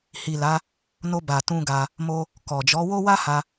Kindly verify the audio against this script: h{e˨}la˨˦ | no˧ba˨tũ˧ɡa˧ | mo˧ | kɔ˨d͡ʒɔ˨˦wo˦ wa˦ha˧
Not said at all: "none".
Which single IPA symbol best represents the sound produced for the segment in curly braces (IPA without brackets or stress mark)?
i˨